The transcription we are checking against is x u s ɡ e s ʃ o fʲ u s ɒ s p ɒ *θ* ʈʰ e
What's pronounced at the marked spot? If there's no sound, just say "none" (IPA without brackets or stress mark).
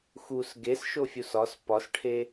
s